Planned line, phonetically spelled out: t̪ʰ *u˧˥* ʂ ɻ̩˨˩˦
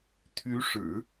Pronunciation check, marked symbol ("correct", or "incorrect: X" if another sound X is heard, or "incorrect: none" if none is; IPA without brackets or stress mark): incorrect: y˧˥